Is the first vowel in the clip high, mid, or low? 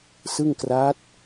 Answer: high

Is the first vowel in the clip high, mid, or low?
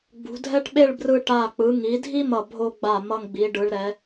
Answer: high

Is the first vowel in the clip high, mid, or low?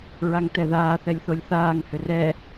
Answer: low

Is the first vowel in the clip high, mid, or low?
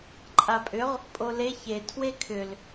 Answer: low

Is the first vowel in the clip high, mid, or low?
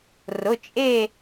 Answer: high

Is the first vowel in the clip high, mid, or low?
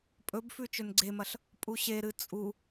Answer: mid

